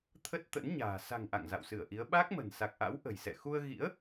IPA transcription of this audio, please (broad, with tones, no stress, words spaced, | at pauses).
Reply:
t̪ʰə˦˥t̚t̪ə̰˧˥nɲa̤ː˨˩ sa̤˨˩ŋ ʔa̰˧˨ŋ za̰˧˨wsɨ˧˩ə̯ʔi˨˦ə̯ ɓa˦˥k̚mə̤˨˩n sa˨˩k̚ʔa̰˧˥w ʔə̤˨˩jsɛ̰˧˨ xu˧ə̯ɣḭ˧˥ə̯